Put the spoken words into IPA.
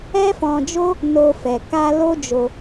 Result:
ɛ˦fɔ̃˧d͡ʒo˦ | no˧fɛ˨ ka˧ lo˦d͡ʒo˧

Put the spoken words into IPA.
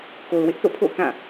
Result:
ko˨ʊ̯wɪ˦ʔθo̰˦˨pʰo̰˦˨ʊ̯ kã˦˨

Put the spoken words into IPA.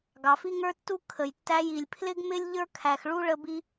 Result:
ɡɑ˩fi˥ŋə˞˥tːu˥ kʰə˩jtːæ˥j i˩lʲpʰlɪ˥ɡmɪ˥lʲ ʎə˞˥kʰæ˩xɭu˥ ɭə˥bi˥

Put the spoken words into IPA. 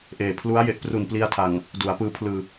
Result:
ʔeː˨˩ pʰlu˦˥a̯ je˦˥ʔpru˨˩npli˧a̯tʰa˨˩ŋ | du˩˦a̯pɯː˦˥pʰlɯː˧

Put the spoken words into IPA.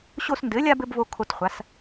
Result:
ɕo˦sndɘ˨˥lʲa˦b ɘ˨˥bvo˦ kʰo˦t χʷa˨˥s

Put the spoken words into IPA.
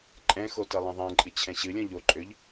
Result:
ǃʼɛ̃xo tɜlˠɛ̃ðˤɛ̃ǃʼɨ t͡ɕʰɛ̃ɕɨlʲɔ̃ ʎoǃʼøʎ

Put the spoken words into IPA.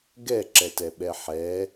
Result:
ɡɛǁɛtɛɓɛ ħɛ

